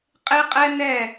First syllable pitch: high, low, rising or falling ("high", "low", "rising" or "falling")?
high